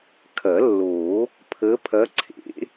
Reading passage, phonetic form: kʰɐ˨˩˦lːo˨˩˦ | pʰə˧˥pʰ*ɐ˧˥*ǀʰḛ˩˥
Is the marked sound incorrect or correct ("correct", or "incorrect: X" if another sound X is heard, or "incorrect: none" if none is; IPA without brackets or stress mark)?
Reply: correct